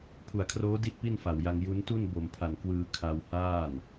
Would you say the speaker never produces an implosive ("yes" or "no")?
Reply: yes